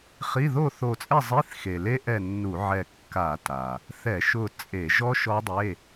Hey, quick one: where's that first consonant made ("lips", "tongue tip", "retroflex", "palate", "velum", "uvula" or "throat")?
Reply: uvula